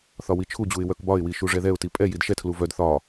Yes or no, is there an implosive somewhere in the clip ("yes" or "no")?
no